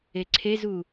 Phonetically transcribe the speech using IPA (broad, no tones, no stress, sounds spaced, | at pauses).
e ǀʰ e z u